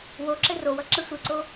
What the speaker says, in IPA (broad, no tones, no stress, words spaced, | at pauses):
woǁɘ rowʌ ǁɘsʷeǀo